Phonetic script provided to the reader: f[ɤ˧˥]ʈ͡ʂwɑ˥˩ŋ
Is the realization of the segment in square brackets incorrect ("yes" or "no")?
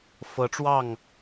no